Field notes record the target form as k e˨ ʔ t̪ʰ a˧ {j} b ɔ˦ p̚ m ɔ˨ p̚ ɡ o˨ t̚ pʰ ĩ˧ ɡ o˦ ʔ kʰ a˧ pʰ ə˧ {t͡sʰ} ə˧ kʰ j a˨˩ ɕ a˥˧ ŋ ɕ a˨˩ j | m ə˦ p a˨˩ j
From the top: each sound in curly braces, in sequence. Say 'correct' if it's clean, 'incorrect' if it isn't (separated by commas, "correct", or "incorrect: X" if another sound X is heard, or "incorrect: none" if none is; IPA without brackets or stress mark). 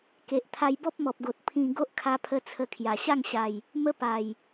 correct, correct